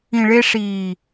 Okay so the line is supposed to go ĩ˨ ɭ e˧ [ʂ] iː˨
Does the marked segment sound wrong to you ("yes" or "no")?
no